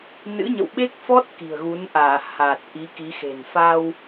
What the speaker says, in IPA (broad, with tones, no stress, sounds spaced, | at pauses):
n ɨ̰˧˥ ɲ ə̰˧˨ w ɓ e˦˥ k̚ f ɔ˦˥ t̚ k i̤˨˩ ə̯ ɣ u˨˦ n ʔ aː˧˩ h aː˨˩ t̚ ʔ i˨˦ k i˨˦ x e̤˨˩ n f a˧ w